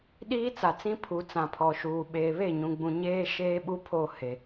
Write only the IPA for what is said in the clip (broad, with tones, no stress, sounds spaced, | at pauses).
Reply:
ɗ iː˦ t͡s a˨ t͡s ĩ˦ pʰ u˨ t͡s ã˨ pʰ ɔ˨ ʃ uː˨ ɓ eː˨ β e˦˨ ɲ ũ˨ ɡ͡b ũ˨ ɲ eː˦ ʃ eː˦ ɓ u˦ pʰ o˦˨ h e˨